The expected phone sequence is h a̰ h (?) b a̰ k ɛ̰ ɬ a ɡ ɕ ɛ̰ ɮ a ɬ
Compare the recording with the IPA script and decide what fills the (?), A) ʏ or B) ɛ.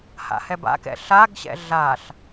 B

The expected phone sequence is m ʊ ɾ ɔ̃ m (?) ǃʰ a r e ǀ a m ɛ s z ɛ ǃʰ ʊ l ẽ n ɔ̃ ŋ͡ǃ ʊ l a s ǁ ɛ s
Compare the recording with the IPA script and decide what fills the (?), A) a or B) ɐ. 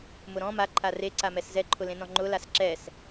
A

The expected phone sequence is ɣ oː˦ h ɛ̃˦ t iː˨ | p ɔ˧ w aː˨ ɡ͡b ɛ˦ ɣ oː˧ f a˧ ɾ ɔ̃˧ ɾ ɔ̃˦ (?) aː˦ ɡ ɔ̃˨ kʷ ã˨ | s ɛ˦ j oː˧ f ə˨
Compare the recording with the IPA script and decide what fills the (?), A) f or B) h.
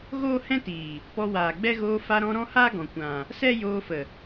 B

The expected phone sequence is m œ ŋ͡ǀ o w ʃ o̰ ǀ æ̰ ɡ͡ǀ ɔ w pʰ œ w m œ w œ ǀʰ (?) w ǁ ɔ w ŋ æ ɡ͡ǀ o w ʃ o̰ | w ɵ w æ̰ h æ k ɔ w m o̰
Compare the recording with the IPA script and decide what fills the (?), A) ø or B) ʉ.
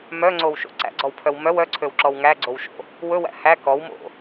A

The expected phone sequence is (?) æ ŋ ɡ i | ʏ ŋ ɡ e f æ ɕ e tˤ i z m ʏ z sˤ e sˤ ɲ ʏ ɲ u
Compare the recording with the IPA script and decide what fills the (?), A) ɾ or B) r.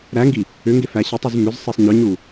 A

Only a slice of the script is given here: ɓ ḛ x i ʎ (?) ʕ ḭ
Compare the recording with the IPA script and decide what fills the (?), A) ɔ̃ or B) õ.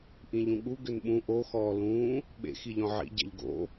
A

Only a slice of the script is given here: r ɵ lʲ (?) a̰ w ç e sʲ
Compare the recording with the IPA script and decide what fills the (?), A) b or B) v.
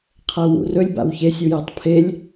A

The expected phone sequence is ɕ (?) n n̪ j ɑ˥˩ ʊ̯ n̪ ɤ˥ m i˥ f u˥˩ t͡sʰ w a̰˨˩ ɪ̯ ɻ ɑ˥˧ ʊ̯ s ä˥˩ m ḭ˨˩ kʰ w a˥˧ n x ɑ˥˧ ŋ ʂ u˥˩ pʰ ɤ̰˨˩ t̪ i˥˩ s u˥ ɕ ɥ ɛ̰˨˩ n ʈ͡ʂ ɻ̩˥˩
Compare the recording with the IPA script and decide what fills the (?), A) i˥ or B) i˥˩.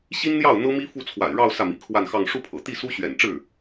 A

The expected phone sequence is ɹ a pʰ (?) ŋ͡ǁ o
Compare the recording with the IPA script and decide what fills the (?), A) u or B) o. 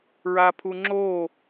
A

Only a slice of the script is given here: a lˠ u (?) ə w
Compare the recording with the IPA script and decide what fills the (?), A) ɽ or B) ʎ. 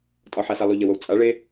B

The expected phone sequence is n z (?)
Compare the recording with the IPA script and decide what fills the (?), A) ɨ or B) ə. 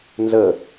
B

